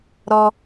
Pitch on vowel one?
high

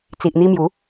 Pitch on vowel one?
low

